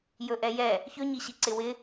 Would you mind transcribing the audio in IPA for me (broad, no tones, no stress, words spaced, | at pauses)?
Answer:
jɵʔɛjɛ | çɵɲiɕi ǀɪwɪ